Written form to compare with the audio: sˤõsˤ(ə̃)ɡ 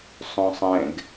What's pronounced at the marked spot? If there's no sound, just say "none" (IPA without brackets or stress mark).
ɛ̃